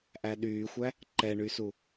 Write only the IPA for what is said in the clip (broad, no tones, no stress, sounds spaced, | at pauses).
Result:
ʔ æ ɗ yː xʷ æ | ǃ ɛ ɳ y s u